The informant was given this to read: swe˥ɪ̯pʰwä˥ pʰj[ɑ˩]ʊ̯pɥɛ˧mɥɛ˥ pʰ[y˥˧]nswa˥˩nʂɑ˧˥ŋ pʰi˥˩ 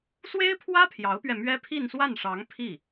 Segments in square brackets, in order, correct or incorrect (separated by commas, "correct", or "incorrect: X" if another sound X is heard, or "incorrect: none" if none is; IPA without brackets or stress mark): incorrect: ɑ˧˥, incorrect: i˥˧